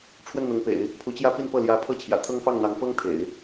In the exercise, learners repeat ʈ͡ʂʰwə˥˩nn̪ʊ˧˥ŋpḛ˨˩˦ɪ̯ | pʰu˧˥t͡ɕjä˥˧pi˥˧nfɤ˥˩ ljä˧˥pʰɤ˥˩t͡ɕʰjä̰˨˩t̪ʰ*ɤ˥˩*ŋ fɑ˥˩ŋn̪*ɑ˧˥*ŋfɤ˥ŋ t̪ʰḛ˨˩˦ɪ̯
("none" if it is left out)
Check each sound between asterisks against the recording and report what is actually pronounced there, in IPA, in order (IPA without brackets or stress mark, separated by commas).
ɤ˥, ɑ˧˥